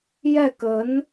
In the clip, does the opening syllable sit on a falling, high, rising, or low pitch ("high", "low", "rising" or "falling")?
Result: falling